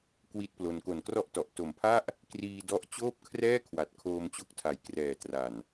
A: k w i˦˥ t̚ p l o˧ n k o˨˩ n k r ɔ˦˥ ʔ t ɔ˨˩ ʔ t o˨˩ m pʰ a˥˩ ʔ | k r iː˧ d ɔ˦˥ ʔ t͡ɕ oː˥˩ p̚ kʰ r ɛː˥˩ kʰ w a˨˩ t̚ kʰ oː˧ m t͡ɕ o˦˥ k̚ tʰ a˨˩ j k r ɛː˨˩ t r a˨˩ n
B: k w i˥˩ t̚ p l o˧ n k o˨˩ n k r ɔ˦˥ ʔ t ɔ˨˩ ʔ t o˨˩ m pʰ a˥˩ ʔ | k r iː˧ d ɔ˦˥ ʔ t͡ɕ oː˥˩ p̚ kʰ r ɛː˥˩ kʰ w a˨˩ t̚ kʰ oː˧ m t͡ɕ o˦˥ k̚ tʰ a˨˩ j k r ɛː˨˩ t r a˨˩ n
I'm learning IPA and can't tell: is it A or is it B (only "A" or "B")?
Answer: A